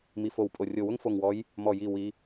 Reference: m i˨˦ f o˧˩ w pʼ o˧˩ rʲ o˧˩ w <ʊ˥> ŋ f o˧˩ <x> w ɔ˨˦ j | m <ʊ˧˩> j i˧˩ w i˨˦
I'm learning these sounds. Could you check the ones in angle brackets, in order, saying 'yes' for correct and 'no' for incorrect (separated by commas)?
yes, no, no